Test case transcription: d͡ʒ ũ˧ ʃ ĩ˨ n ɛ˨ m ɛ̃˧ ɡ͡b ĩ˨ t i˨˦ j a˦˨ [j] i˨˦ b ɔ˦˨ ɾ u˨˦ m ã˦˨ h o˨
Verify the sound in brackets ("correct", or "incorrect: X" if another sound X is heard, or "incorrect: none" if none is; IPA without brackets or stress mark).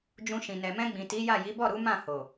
correct